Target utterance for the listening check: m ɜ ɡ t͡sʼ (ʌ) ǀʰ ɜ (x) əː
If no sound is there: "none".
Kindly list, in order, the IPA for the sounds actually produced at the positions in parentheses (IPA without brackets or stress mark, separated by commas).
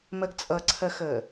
ʌ, x